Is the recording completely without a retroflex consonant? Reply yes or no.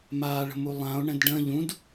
no